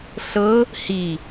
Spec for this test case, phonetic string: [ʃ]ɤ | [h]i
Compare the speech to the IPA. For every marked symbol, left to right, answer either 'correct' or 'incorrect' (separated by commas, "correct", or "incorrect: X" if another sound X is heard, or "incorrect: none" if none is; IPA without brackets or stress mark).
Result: incorrect: ɬ, correct